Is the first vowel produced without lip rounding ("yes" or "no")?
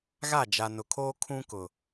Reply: yes